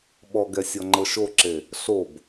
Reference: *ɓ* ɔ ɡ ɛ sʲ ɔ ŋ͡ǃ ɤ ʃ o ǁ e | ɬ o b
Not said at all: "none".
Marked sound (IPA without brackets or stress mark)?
ɓ